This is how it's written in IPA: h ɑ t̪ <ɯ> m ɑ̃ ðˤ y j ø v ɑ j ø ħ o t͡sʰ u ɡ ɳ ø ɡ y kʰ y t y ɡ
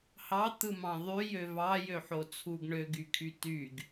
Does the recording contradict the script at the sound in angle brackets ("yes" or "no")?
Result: no